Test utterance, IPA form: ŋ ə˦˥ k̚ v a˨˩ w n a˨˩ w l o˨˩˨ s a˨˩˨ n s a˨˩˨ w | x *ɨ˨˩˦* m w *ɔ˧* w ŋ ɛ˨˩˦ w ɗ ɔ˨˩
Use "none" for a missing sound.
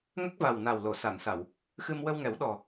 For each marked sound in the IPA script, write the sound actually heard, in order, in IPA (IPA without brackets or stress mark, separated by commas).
ɨ˧, ə˧